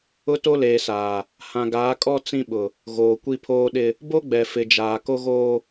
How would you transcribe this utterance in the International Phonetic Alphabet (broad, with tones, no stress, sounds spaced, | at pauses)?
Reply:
ʊ˦ t o˦ l eː˨ s aː˨ | h ã˨ ɡ aː˨˦ kʼ ɔ˦ t͡s ĩ˦ ɓ ʊ˨ | ɣ oː˨ kʷ i˦ pʰ oː˦ ɗ ɪ˦ | b o˦ ɡ͡b ɛ˨ f ɪ˨ d͡ʒ aː˨ k o˦ ɣ oː˦